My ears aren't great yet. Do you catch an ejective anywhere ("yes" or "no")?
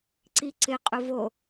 yes